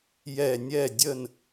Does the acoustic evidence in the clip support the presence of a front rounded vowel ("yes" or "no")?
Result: no